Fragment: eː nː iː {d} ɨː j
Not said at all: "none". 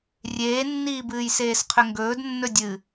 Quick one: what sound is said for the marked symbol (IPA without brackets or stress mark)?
b